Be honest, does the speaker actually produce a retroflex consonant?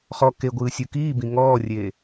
no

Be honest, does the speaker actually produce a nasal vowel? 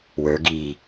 no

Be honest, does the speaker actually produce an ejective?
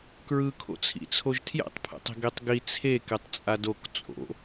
yes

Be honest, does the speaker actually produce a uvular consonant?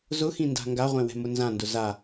yes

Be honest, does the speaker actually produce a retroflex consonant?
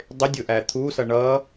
yes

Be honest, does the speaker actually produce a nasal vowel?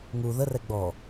no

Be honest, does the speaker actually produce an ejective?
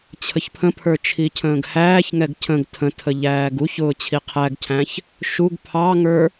no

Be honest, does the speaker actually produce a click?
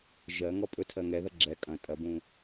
yes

